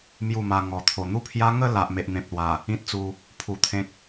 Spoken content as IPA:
mju˥˧ma˧ ŋɔ˨˩t̪ʰo˨˩ n̪u˦pʰja˦ ŋə˥˧ la˨ʔ me˨ʔn̪ẽ˨p̚lwa˨˩ | ĩ˦t̚t͡su˧ | pʰu˧t̪ʰẽ˦k̚

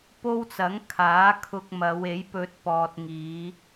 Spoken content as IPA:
po˥wt͡sɐ˨˥ŋ kʰaː˨˥kʰʊ˧k̚ mɐ˨˧we˨˥jpɵ˧t̚ pɔː˨t̚ŋiː˨˧

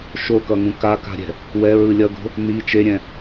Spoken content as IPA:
ʃokʌŋũ kaka̤ɾʲɛ̤ | wɛɹɯ lʲʌɡo̤ | ni t͡ʃeɾʲɛ̃

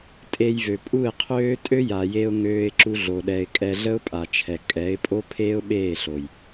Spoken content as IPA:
tʼe˧jvø˨pʼu˦˨ɪ̯qʰøː˦ tʼø˦ja˨je˧ʊ̯ ŋøː˧ɪ̯ǁu˧ɮo˨ɗɛ˨ɪ̯ kʼɛ˧ɮə˦ʊ̯pʼa˨t͡ʃʰɛ˨ kʼɛ˨˦ɪ̯pʼo˦ pʰeː˦ʊ̯ɓeː˦˨ɬo˨j

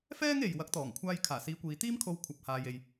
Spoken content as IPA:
fɛː˥ŋ e˨j wɐ˨˥k̚t̪ɔː˨˩ŋkʷʰaː˧jkʰaː˨˩ siː˨˧kʷiː˨t̪iː˥mkʰo˧w kʷʰɐ˨p̚haː˨je˨j

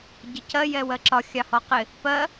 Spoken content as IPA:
ɟəcɜ jɛwɜǁɒ xʲɑhɔqɪ | pɜ

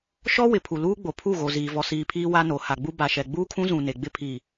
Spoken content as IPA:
ʃɔ˦ wɪ˨pʰu˨ luː˦ɡ͡bo˨ pʰu˦˨ɣo˨ ziː˨vɔ˨siː˨pʰiː˦ wa˦no˨ ha˨ɡ͡bu˦ ba˨ʃɛ˨ ɡ͡buː˦kʰũ˦zũ˨ ne˨ɡ͡bɪ˦ pʰiː˨

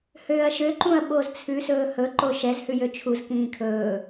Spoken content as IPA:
høːɐ̯ʃø ǃũɐ̯ɓozt͡sʰʉ sɵːhɵ ǃoʃɛz hʉjøt͡ʃʰuz kĩːkʰɵː

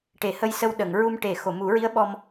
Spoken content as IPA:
ʈe˨˩˦hə˧jsə˧w ɗə˨˩˨ŋɹu˧m ʈe˨˩˦ xo˨˩˨mu˨˩˦ɹi˧˥ə̯ ɓɔ˧m

